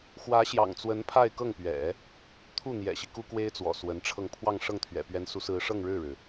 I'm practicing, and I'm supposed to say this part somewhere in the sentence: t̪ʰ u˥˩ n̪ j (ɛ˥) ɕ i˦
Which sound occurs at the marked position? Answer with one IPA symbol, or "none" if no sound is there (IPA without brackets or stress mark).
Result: ɛ̰˨˩